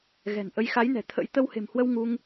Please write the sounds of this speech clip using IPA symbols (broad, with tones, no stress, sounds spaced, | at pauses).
ɣ ɛ̤˨˩ n ʔ ə˨˦ j x a˨˦ j n ɛ̤˨˩ t̪ʰ ə̰˧˥ j t̪ ə˧ w h e̤˨˩ m h w ə˧ w ŋ u˧ ŋ